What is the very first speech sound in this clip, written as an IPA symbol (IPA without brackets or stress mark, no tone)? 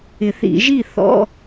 ɪ